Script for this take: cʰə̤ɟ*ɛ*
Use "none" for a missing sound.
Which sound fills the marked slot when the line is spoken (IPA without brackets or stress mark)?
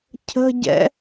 ɛ̰